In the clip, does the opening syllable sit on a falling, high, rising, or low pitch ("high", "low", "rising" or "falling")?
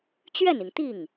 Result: falling